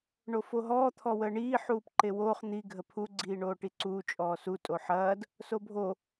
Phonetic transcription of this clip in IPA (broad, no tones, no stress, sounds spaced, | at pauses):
ɳ o f o ɦ ɔː t̪ʰ ɔ w əː ɳ iː ħ uː p ǃ e w oː χ n̪ i ɡʱ ə pʰ u ɡ͡ǀ iː ɳ oː ʈ i ǀ uː t͡ʃʼ ɔː s u tʼ o ħ ɐː d | s o bʱ o